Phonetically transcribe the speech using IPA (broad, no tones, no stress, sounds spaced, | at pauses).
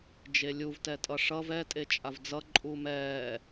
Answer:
d͡ʒ e lʲ u v t ɛ tʼ ʌ ʂ ʌ v ɛ tʼ e t͡ʃʼ a v d͡z ʌ ǃʼ u m ɛː